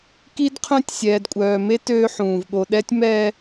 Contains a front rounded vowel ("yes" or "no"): yes